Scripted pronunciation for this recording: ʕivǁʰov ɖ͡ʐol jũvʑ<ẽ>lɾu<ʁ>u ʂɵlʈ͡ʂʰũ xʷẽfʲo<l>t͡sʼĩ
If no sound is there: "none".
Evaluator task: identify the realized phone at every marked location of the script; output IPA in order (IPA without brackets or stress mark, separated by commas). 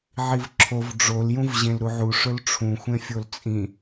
ẽ, ʕ, l